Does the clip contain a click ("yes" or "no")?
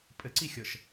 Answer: yes